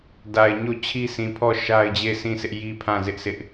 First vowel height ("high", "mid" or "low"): low